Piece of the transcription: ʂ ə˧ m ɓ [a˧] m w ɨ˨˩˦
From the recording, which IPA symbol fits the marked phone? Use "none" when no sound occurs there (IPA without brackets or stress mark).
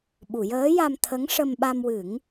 a˧